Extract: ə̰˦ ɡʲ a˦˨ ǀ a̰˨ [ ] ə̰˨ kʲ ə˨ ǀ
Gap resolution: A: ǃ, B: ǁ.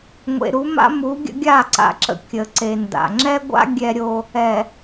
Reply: B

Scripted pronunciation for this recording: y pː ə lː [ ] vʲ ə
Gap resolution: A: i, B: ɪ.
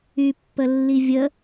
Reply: A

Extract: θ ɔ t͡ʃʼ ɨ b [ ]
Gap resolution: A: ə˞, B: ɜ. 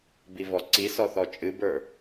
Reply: A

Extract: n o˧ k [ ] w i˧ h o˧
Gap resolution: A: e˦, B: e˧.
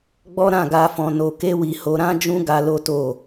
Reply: A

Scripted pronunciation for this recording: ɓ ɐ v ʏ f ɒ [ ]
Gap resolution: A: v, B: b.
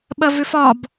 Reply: B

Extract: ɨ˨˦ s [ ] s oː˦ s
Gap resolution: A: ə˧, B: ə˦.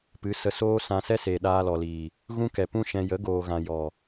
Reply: A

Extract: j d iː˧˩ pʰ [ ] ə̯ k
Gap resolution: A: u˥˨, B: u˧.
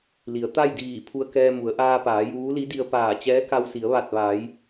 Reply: B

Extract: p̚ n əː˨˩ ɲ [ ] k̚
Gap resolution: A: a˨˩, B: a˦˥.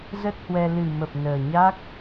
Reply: B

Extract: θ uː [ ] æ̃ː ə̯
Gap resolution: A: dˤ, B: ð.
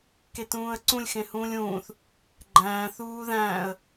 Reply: B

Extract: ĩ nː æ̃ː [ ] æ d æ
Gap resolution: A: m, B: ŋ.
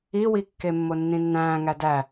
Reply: B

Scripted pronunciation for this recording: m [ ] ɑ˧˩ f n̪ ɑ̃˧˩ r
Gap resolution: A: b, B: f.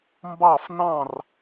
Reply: A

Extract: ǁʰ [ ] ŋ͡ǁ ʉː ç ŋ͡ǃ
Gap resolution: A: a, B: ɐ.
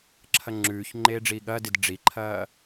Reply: B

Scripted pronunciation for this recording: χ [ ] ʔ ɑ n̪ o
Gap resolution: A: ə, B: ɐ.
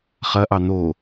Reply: B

